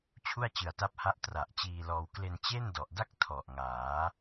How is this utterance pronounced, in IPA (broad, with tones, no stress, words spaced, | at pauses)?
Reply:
t͡ɕʰu˥˩a̯t͡ɕɯ˨˩a̯ta˦˥p̚ha˦˥ʔ tra˨˩ʔt͡ɕiː˧lɔː˧w kle˧nt͡ɕe˥˩ndɔ˨˩ʔda˥˩k̚ tʰɔ˨˩ʔŋaː˩˦